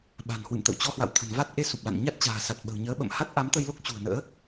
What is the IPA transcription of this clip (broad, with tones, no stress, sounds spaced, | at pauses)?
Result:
ɓ a̤˨˩ n h w ɨ̰˧˨ m t̪ ə̰˧˨ w t͡ɕ ɔ˧ h w a̰˧˨ w t̪ʰ ə̤˨˩ n v a˦˥ t̚ ʔ e˧ s u˨˩ p̚ l a̰˧˨ n ɲ a˦˥ t̚ t͡ɕ a̤ː˨˩ s a˨˩ t̚ ɓ ə̤˨˩ w ɲ əː˨˦ ɓ ə̰˧˨ m h a˦˥ t̚ ʔ a˨˦ m t̪ ə˧ j l o˦˥ k̚ t͡ɕ ṳ˨˩ ə̯ n ə̰ː˧˥